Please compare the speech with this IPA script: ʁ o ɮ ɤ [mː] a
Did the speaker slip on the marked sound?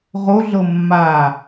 no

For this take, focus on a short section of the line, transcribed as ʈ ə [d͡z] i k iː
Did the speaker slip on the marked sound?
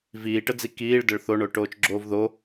no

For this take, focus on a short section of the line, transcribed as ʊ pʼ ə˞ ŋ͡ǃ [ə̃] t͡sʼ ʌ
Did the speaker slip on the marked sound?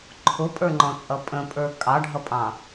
yes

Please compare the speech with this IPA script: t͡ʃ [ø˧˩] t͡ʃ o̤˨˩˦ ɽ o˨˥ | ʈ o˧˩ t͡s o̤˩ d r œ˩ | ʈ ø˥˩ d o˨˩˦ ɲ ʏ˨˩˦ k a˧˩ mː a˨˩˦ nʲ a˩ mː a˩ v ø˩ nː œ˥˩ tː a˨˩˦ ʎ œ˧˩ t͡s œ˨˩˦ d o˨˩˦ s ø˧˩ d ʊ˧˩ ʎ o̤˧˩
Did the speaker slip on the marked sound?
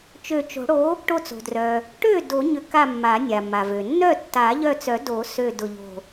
no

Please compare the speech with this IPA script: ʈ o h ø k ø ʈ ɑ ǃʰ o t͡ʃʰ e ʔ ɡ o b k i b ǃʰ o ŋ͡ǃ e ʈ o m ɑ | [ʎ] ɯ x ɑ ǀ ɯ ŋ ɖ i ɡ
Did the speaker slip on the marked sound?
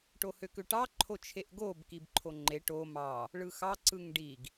yes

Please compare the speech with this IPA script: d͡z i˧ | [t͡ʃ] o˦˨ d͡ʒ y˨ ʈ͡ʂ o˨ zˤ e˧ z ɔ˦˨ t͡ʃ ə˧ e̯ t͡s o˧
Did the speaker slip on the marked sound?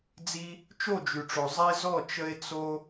no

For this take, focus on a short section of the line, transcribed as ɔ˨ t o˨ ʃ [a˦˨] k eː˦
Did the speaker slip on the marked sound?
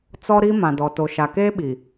yes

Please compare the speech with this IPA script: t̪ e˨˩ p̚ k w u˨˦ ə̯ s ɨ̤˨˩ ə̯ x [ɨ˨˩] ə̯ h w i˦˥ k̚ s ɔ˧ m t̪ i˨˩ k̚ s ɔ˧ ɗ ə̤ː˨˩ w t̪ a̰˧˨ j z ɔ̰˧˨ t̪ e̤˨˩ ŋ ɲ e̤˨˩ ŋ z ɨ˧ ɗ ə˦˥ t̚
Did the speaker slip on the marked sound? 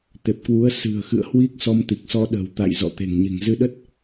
yes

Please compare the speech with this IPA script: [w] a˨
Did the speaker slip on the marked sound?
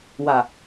no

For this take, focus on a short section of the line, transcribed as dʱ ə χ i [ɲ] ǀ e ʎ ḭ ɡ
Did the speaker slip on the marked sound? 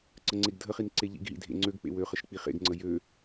yes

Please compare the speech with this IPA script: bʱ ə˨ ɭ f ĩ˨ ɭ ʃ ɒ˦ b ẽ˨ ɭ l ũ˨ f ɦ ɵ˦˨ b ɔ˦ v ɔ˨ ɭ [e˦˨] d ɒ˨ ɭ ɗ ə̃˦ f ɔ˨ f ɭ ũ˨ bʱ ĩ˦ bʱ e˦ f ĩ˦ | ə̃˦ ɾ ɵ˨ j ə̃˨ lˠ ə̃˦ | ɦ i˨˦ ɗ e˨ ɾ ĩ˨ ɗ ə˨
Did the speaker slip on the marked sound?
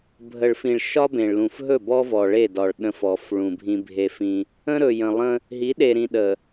no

